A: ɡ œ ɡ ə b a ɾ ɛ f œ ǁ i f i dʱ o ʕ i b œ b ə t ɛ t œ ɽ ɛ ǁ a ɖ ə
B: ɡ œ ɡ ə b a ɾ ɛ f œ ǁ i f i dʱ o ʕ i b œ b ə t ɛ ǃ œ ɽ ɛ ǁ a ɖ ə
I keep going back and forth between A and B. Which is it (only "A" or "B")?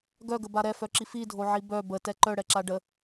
B